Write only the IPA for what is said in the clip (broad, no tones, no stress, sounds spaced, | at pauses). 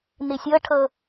n i sʲ ɤ ʈʰ ɤ